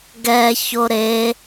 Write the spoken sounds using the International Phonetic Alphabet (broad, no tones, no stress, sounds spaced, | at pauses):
ɡ ɛ ç o ɾ e